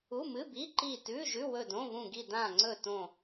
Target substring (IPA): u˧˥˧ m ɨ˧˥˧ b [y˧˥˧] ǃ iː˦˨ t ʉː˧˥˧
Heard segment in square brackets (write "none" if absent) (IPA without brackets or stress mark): i˧˥˧